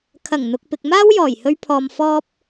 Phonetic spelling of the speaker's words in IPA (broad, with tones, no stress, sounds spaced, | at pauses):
kʰ ɐ˨˩ ŋ n̪ ʊ˨ k̚ p ɪ˨ k̚ m aː˥ w j ɔː˨˩ j h ɵ˧ ɥ pʰ ɔː˨ m f ɔː˧ p̚